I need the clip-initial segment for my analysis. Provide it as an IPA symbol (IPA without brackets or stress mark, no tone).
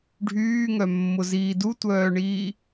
ɖʱ